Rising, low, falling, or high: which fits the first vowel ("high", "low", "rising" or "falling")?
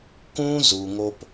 high